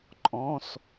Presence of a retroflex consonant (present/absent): absent